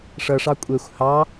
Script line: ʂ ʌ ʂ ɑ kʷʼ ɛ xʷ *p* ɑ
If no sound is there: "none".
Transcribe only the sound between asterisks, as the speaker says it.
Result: h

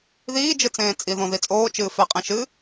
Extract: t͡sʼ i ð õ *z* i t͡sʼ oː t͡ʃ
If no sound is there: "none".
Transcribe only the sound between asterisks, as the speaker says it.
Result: ð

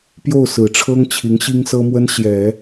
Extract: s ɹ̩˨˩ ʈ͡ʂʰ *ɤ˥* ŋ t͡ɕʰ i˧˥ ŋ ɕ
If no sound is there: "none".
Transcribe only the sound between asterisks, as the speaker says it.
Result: ɤ˥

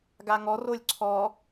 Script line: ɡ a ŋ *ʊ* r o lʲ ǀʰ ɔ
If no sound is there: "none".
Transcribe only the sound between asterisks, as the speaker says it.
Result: ɔ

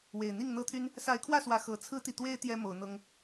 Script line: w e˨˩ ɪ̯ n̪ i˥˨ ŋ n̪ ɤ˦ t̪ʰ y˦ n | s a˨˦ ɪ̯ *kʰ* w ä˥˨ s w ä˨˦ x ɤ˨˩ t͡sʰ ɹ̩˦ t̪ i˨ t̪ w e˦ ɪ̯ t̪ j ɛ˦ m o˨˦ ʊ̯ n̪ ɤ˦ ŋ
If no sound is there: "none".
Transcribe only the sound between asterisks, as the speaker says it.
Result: kʰ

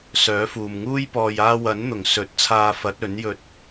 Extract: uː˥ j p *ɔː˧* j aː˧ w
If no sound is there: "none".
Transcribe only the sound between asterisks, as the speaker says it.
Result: ɔː˧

